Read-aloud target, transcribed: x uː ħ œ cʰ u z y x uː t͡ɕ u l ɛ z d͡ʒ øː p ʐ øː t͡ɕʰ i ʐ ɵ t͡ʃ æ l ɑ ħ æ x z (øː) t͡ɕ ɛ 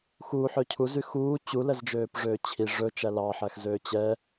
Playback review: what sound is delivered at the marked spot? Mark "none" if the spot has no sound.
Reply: øː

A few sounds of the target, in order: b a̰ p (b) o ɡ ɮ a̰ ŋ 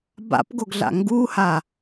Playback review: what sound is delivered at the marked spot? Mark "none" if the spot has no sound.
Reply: ɡ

